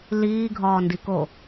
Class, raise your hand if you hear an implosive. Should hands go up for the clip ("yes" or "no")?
no